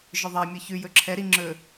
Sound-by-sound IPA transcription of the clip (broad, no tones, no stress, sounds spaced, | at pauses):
ʒ ɵ ðˤ ɑ mʲ ɔ ç ʉ j ɵ ǁʰ ɛ ɾ i ŋ͡ǁ ɵ